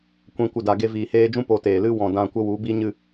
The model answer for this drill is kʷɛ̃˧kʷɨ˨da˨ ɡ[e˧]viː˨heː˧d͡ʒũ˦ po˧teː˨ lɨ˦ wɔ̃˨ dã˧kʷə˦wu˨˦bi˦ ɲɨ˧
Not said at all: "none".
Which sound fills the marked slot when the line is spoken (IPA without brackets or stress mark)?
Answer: e˧